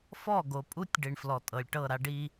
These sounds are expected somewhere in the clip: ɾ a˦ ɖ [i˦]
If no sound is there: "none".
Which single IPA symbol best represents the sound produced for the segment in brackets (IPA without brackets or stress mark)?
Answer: i˦